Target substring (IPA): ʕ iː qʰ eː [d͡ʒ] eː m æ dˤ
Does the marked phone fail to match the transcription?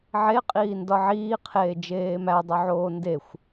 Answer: no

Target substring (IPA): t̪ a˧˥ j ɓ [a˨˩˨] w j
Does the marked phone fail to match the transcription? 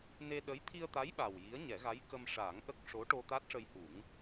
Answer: yes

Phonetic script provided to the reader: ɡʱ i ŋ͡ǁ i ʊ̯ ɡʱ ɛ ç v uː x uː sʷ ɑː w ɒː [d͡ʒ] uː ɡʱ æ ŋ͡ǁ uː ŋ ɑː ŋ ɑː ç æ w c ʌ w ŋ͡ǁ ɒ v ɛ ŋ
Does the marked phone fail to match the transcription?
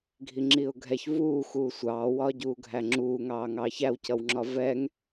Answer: yes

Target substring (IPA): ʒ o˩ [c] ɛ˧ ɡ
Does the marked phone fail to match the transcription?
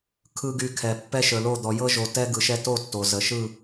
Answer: yes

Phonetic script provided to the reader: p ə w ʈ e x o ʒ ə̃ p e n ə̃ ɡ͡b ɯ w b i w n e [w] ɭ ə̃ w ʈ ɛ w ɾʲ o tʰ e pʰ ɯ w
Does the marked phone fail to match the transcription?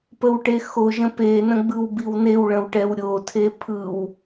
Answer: no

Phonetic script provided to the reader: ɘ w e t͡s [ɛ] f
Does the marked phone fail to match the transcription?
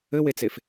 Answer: yes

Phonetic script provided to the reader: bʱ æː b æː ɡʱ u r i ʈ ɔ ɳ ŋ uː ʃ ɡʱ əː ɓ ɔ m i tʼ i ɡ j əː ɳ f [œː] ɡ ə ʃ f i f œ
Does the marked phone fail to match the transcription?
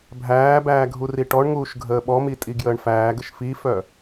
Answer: yes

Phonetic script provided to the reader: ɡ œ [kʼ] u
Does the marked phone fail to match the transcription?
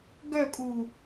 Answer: no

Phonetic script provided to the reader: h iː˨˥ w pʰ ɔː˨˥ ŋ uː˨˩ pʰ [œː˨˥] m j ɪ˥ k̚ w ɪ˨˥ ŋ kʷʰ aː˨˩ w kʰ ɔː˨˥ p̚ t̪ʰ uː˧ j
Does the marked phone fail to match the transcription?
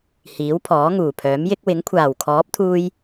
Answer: no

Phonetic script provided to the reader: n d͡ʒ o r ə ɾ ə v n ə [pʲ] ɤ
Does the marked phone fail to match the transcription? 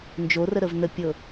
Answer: no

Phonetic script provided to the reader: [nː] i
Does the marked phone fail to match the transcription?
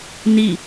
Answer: yes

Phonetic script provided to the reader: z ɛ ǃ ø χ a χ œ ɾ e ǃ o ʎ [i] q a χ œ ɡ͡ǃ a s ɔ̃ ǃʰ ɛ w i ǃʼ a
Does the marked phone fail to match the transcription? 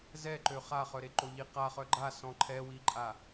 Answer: no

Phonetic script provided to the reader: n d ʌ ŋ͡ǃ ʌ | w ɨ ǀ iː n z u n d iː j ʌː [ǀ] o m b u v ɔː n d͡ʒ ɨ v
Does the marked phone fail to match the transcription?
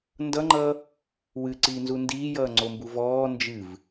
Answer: yes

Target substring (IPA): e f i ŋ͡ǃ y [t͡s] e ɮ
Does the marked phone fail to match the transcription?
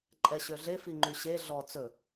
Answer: yes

